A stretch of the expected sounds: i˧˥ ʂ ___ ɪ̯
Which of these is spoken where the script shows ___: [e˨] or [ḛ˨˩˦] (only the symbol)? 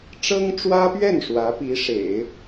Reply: ḛ˨˩˦